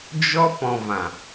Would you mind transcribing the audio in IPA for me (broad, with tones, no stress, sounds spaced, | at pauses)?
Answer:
d͡ʒ ɔ˦ p ɔ̃˨ v ã˨